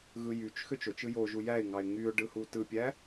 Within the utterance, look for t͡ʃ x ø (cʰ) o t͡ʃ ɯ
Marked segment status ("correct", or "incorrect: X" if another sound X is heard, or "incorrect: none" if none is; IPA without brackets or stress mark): incorrect: t͡ʃ